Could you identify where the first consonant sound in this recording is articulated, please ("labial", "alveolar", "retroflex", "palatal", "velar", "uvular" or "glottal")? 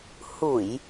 glottal